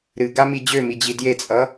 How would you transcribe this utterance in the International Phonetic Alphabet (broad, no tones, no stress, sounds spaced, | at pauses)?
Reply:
ɾ ɨ ɡ a m i d͡ʑ ø m i d͡ʑ i d j e t͡sʼ ʌ